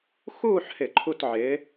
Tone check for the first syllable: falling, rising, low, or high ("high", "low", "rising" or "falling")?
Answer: falling